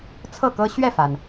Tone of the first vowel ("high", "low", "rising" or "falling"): falling